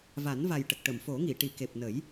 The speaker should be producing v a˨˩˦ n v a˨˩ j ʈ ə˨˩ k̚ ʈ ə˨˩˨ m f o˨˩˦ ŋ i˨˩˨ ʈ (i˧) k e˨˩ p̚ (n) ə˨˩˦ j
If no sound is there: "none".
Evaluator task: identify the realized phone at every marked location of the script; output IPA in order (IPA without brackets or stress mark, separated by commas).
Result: i˨˩˨, n